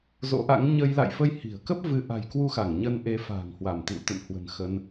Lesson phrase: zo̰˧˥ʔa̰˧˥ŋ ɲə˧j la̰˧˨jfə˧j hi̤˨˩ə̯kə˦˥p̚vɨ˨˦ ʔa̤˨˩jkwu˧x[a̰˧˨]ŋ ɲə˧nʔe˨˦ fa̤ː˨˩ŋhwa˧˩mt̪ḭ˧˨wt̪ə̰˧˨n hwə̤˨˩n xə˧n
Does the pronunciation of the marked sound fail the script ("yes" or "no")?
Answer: yes